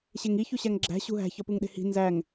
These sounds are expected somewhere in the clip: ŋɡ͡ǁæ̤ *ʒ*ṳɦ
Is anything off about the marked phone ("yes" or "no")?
yes